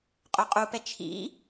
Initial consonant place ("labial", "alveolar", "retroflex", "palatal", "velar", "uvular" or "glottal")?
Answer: uvular